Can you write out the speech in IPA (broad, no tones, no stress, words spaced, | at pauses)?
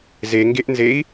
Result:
zeŋɡeʔnzei̯